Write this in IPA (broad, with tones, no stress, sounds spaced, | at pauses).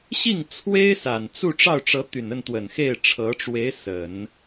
ɕ i˥˩ ŋ t͡sʰ w e˥ ɪ̯ s a˨˩ n t͡s u˥˧ ʈ͡ʂ ɑ˥˩ ʊ̯ ʈ͡ʂ ɤ˧˥ t̪ y˨˩ n ə˥˩ n t̪ w ə˨˩ n x e˥˩ ɪ̯ ʈ͡ʂʰ ɤ˧˥ ʈ͡ʂ w e˧˥ ɪ̯ s ə˨˩˦ n